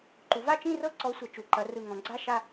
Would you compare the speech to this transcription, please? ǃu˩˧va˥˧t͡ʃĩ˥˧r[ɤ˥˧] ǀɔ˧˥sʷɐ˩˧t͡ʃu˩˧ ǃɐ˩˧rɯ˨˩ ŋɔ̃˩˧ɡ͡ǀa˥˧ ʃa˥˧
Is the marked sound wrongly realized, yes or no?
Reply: no